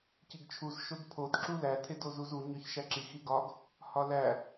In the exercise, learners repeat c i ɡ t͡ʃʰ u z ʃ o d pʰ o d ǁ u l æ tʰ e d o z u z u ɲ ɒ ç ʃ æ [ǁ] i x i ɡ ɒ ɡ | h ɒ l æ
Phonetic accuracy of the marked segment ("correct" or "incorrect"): correct